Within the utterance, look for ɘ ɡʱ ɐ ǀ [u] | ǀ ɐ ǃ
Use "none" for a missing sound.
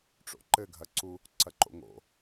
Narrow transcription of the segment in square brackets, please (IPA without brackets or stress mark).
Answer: u